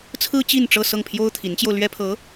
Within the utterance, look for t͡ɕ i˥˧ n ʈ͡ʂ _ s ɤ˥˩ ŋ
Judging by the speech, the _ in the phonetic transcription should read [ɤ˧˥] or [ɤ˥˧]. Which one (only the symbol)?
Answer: ɤ˥˧